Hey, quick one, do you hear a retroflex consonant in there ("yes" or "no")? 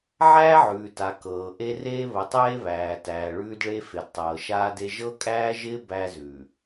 yes